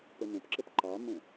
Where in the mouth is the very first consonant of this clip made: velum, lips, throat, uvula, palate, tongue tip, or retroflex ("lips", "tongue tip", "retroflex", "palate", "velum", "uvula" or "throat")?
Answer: lips